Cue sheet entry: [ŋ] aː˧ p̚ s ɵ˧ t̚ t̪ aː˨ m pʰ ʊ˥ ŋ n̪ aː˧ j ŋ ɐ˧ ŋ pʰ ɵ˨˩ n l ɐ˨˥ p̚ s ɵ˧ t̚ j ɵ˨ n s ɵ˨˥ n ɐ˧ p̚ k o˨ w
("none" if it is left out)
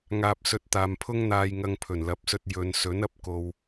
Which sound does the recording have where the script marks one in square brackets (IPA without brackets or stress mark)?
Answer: ŋ